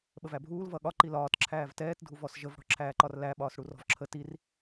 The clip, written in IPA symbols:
ɓ ə v æ bʱ uː l v ʌ ɠ ɒ ǃ i l ɒː t ǁʰ æː v t ɛː t dʱ u v ɔ s ʒ ə v ɽ ɔ̤ ǁʰ æː ǃ ɒ r l æ ɓ ɒː s ɽ u r ɔ̤ v ǁʰ ə t i r

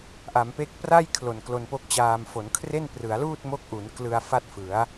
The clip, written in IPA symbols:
ʔ a˩˦ m p e˥˩ k̚ p r a˥˩ j kʰ l o˨˩ n k l o˧ n p o˦˥ k̚ t͡ɕ aː˧ m f o˩˦ n kʰ r e˥˩ n p r ɯ˩˦ a̯ l uː˥˩ t̚ m o˦˥ k̚ ʔ u˩˦ n k l ɯ˧ a̯ f a˥˩ t̚ f ɯ˩˦ a̯

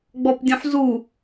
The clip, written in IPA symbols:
ɡ͡b ɔ p dʲ õ ħ z u

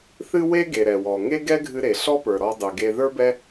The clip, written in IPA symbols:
θ ɨ˥ w e˥ ɡ e˩ ɾ ɛ˩ w ɔ˩ ŋ e˥ ɡ ɛ˥ ɡʱ ɨ˧ ɾ e˩ ɬ ɔ˥ p ə˞˩ ɾ ɔ˧ dˤ ɨ˩ ɡ e˧ ð ə˞˥ b ɛ˥

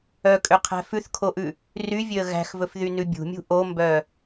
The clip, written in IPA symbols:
œ kʼ ø qʰ æ̤ f ʉ θ kʰ o ʔ ʉ | r y vʲ ø ə̯ ɣ æ̤ x v ɵ f ð y n ʉ bʲ ṳ mʲ ṳ ʔ o m b œ

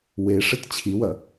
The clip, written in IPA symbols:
w e ʂ ɘ t t͡ɕʰ i w ɐ

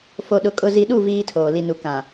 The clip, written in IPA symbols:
f o˨ ɗ ʊ˨ kʼ ʊ˨ z i˨ ɗ u˦˨ v iː˦ tʰ oː˨ l i˨ n u˨ k ã˨

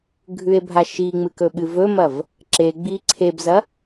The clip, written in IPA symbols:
ɡʱ ʉ e̯ bʱ a ʃ i ŋ͡m ɨ k ɵ ɓ ɨ v ɵ m ɐ v | ǁ e ɡ͡b i ǀʰ e b z ɐ

